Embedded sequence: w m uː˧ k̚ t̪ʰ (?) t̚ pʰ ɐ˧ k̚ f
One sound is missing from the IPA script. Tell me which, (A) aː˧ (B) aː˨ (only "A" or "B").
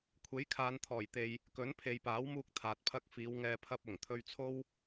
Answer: B